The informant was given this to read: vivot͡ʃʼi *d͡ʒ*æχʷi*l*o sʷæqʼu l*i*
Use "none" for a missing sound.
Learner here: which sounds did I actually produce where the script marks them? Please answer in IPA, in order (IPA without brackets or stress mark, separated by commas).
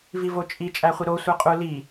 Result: t͡ʃʼ, ɾ, i